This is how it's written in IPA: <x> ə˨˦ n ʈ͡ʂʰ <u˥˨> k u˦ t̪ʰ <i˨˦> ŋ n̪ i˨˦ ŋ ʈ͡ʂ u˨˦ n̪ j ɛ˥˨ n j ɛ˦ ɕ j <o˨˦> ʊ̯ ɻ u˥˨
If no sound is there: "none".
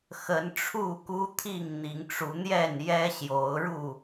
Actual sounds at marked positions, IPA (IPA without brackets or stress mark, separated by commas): x, u˥˨, i˥˨, o˨˦